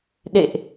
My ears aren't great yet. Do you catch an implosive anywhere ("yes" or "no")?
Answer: yes